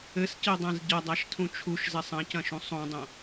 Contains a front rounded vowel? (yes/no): no